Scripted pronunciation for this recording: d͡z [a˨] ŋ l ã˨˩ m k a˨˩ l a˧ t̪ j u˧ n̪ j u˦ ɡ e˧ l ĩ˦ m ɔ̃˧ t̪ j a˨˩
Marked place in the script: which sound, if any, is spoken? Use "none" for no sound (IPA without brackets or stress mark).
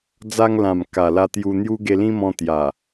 a˧